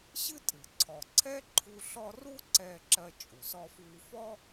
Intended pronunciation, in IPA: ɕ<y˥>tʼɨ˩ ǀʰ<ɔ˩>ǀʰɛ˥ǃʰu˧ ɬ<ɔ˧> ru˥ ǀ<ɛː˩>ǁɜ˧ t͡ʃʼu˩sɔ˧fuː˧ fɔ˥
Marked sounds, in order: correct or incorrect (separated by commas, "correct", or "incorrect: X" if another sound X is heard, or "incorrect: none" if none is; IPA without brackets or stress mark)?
incorrect: ɨ˥, correct, correct, incorrect: ɛː˧